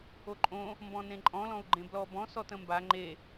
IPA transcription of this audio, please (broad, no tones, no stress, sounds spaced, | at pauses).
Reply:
o ǃʼ õ | m b ɔ̃ n ẽ ǃʼ ɔ̃ l ɔ̃ u̯ ɡ͡ǃ ẽ b l ɔ b ɔ̃ s ɔ t ə̃ m b a ŋ͡ǃ e